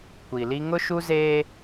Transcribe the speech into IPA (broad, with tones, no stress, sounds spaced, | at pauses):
kʷ i˨ l i˦ ŋ ʊ˦ ʃ u˦ z eː˦